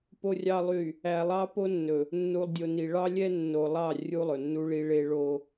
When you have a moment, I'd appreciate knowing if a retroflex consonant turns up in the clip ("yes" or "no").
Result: yes